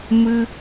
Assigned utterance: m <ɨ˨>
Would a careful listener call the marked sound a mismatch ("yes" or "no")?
yes